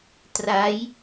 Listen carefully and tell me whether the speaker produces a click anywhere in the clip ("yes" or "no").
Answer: no